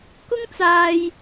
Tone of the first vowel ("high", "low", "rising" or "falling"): high